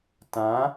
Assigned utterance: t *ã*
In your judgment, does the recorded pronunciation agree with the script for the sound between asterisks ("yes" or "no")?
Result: yes